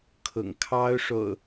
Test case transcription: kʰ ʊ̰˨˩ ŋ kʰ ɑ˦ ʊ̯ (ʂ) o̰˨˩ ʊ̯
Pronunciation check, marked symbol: correct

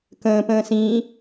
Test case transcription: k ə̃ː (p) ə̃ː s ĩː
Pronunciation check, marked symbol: correct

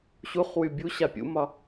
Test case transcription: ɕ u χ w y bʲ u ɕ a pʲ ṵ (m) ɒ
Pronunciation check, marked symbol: correct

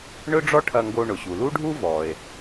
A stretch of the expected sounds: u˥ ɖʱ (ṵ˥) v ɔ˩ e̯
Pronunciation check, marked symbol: incorrect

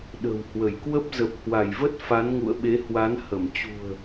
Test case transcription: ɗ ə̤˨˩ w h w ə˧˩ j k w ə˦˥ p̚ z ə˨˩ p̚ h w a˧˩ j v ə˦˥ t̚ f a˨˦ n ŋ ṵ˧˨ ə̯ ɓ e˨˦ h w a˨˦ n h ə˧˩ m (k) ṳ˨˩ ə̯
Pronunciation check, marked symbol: incorrect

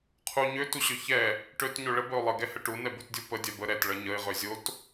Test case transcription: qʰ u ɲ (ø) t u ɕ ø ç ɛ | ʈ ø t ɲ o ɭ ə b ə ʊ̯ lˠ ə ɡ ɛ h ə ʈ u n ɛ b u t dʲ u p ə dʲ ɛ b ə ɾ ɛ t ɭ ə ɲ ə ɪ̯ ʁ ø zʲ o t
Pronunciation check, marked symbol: correct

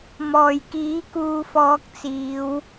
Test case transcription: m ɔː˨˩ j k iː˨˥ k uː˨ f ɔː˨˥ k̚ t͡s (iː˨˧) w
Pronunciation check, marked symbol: correct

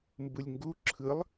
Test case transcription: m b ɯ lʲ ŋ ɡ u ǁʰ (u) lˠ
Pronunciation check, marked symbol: incorrect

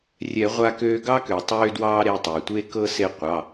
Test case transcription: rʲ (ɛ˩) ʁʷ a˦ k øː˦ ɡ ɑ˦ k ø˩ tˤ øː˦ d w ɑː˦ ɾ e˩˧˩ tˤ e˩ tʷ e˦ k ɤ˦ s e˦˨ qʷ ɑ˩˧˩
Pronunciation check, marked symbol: incorrect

